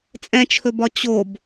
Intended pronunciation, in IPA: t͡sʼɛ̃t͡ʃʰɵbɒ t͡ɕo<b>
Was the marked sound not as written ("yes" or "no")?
no